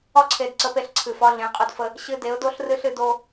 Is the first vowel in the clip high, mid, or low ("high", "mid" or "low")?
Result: low